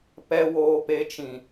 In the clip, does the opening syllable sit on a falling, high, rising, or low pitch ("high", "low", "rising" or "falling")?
low